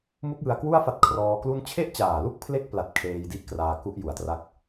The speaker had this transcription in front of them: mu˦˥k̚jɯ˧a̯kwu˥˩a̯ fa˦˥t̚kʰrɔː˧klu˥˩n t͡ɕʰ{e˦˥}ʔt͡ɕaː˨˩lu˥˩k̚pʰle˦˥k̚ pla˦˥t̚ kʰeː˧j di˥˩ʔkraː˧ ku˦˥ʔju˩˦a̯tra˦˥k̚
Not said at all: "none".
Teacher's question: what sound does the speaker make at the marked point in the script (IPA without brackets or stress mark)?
e˥˩